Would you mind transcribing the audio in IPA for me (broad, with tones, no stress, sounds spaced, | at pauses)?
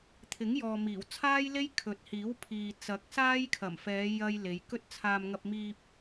t̪ʰ ɪ˨˥ ŋ j ɔː˨ m iː˨˩ w t͡sʰ aː˥ j l e˥ j kʰ ɵ˨ t̚ h iː˨˥ w pʰ iː˨ t͡s ɐ˨˥ k̚ s aː˥ j kʰ ɐ˨˩ m f ɛː˨˧ j ɐ˥ j l e˨˧ j k ɵ˥ t̚ t͡sʰ aː˧ m ŋ ɐ˧ p̚ m iː˧ p̚